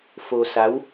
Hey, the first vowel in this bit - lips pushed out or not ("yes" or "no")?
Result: yes